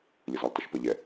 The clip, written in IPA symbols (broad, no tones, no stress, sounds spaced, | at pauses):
lʲ ɯ z ɒ lˠ t ʌ ʃ p ə ʎ ɛ